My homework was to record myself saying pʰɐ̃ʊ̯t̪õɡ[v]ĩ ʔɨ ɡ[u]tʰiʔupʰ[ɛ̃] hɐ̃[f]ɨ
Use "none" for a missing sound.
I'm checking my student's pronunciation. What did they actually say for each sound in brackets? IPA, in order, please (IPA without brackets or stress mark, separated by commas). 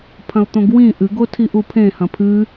w, o, ẽ, pʰ